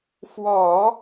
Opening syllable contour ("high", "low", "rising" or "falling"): low